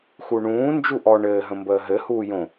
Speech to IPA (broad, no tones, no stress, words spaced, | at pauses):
xuɳũː nd͡ʒuʔɔ ɳɘːɦə̃mbəː ɦɘ huːjõ